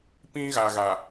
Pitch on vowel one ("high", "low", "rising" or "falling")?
high